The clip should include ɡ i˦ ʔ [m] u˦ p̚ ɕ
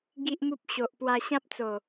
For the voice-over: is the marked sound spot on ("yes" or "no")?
yes